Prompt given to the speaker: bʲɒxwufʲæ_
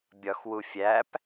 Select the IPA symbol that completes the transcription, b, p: p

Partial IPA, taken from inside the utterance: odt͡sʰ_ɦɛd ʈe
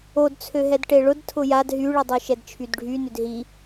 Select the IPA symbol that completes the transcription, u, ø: ø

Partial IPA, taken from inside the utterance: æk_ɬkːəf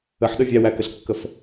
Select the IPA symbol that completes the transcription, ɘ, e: ɘ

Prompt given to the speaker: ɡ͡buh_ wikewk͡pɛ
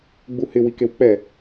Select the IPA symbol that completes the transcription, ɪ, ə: ɪ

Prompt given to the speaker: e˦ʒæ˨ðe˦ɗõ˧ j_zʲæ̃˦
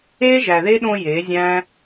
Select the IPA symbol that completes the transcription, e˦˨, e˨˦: e˨˦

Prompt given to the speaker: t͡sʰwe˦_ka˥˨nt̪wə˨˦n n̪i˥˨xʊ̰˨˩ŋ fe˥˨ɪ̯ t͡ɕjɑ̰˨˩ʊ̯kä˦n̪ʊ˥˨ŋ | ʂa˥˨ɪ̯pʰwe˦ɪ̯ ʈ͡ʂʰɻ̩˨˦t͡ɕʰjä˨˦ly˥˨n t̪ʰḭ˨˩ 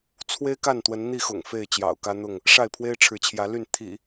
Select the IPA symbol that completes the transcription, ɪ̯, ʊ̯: ɪ̯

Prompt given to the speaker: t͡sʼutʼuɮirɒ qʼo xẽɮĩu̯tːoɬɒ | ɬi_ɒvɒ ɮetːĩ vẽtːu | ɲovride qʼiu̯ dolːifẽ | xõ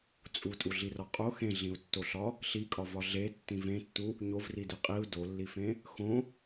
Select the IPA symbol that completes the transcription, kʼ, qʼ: kʼ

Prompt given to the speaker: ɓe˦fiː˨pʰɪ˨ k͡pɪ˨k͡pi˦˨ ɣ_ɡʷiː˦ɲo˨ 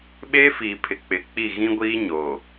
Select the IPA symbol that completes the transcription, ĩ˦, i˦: ĩ˦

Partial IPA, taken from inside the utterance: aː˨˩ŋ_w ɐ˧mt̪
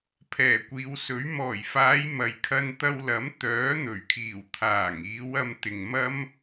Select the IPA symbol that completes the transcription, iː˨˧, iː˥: iː˨˧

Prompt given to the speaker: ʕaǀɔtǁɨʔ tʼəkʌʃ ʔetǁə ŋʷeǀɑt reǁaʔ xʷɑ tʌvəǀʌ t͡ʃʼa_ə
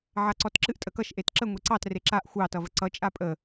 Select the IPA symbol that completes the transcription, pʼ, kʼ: pʼ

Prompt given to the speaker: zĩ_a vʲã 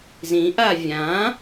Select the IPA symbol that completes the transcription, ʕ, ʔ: ʔ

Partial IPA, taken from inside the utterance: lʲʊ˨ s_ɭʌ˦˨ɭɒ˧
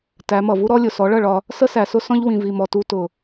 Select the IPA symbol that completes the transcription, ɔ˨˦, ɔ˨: ɔ˨˦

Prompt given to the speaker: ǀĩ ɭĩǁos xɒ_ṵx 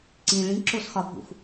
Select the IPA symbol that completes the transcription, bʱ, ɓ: bʱ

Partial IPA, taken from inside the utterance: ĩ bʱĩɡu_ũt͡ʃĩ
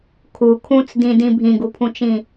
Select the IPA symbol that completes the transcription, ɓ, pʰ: pʰ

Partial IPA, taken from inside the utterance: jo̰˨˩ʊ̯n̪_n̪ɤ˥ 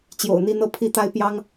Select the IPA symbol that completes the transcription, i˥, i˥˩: i˥˩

